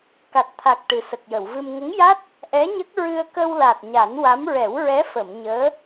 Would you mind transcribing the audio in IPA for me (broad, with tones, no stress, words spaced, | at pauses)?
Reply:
ka˨˩t̚t̪ʰa˨˩k̚ ʈɨ˨˩sə˨˩k̚jə˨˩˨wvɨ˧m ŋə˧˥ŋja˦˥t̚ | ʔɛ˧˥ɲə˦˥k̚ ɹɨ˧ə̯kə˧wla˨˩t̚ ɲa˨˩˦nwa˧˥m ɹɛ˨˩˦wɹɛ˧˥fə˨˩˨m ɲəː˧˥